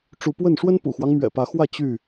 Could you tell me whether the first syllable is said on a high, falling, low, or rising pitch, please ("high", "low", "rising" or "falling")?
rising